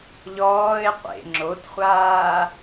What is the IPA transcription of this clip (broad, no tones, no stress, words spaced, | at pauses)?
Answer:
ʎɔːɪ̯ qʷḛ ŋ͡ǁotχʷaː